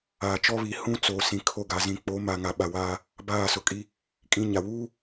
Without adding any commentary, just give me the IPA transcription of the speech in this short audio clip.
aː˨ t͡ʃ ɔ˦ β i˨ h ũ˦ t͡s oː˨ s ĩ˨ kʰ o˦˨ ɡ a˨ z ĩ˨ k͡p o˨˦ m a˨ ŋ a˨ ɓ a˨ w aː˦ | b aː˦˨ s ʊ˨ kʼ i˦ | kʼ ĩ˦ ɲ a˨ w uː˦

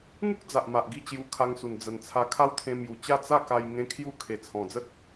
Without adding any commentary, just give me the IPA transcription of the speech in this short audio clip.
ŋ u˦ k̚ d͡z a˨ ʔ m a˨ ʔ ɡ i˥˧ t͡ɕ j u˧ kʰ a˧ ŋ s u˨˩ n d͡z ə˨˩ n t͡sʰ a˧ kʰ a˦ w t̪ʰ ẽ˧ m j u˨˩ t͡ɕ a˥˧ t͡s a˥˧ k a˧ j ŋ ẽ˦ kʰ j u˥˧ kʰ e˨˩ t͡sʰ ɔ̃˨˩ d͡z ə˦ t̚

